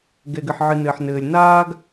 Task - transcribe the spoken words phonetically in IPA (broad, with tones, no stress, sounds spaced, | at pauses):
ɡ ɛ˨ ɡ ɘ˨ ħ ʕ ɨ˨ n ɘː˨ ħ n ɘː˨ lʲ n aː˦ ɡ